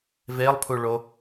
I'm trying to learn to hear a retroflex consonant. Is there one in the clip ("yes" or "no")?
yes